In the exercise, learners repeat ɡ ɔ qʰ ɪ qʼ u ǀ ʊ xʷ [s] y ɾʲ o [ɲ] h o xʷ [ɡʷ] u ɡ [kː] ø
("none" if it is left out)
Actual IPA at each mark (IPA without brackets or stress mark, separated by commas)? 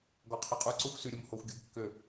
s, m, ɡʲ, kː